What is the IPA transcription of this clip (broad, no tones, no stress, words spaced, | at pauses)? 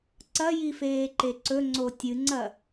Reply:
ǀɐjifeːǃe ǀɵŋ͡ǀo tʲɨŋ͡ǀɐ